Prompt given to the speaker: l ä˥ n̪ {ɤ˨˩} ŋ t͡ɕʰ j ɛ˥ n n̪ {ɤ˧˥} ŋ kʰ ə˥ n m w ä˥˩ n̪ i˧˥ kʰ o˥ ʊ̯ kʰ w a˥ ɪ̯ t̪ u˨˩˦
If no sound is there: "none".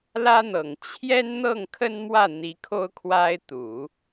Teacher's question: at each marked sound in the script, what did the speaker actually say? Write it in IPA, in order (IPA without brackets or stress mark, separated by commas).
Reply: ɤ˨˩, ɤ˥˩